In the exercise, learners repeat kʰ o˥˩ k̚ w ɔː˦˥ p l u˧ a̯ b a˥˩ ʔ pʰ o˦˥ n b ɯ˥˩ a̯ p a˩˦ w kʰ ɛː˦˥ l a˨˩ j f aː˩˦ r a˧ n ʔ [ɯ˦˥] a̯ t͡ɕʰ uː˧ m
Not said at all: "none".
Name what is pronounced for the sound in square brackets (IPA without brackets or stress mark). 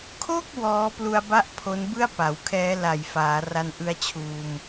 ɯ˦˥